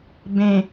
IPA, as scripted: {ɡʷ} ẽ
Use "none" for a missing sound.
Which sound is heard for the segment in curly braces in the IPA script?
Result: b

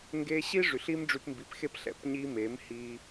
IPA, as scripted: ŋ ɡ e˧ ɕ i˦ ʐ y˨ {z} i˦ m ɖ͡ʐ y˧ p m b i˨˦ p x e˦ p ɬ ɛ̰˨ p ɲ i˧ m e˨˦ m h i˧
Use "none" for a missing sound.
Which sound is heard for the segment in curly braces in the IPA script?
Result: ɬ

